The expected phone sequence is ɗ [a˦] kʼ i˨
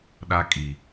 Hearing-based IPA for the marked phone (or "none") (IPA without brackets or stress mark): a˦